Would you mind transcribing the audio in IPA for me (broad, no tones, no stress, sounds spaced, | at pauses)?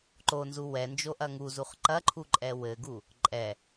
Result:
ǃ o n z u w ɛ n d͡ʒ o ʔ ɐ ŋ u z u χ ǃ ɐ ǃʰ u ǃʼ ɛ w ɘ ɡ u | ǃʼ ɛ